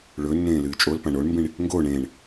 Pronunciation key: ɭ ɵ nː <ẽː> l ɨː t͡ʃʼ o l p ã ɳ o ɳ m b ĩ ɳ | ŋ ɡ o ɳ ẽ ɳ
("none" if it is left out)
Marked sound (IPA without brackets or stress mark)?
ẽː